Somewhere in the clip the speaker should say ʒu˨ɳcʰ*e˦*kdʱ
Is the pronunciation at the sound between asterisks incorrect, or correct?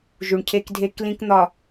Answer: correct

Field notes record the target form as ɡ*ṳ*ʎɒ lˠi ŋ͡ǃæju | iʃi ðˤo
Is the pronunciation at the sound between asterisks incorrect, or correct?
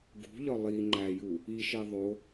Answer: correct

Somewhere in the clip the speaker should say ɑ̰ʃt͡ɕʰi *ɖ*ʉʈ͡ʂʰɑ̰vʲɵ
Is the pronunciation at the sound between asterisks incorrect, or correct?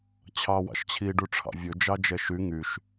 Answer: correct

